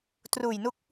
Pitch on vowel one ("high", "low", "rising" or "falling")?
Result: low